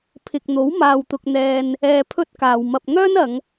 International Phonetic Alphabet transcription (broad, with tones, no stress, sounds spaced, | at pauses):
pʰ ɪ˨ k̚ n̪ o˨˥ w m aː˧ w t̪ ʊ˧ k̚ n̪ ɛː˧ n | ɛː˧ pʰ ɵ˥ t̚ k aː˨ w m ɐ˧ p̚ ŋ œː˥ n ɐ˨˧ ŋ